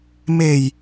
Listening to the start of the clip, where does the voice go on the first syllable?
low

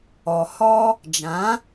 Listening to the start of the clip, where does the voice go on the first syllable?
low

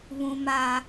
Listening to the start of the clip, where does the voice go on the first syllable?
high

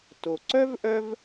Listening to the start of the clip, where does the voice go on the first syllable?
low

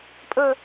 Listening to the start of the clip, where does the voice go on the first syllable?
falling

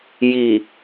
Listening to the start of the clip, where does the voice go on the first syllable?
low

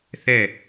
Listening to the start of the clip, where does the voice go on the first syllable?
falling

